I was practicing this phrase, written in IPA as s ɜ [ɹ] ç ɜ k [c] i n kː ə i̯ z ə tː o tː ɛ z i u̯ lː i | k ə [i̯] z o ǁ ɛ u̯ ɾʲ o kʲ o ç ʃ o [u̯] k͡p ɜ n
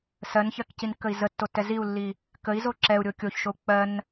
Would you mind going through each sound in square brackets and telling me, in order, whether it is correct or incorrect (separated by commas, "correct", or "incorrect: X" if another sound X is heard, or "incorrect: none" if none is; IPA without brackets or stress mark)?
incorrect: n, correct, correct, correct